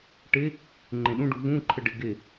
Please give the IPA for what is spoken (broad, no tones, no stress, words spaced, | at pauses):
ʈe | ŋ͡ǃẽɗũɖu vũ ǃʰəɖɪ ɡe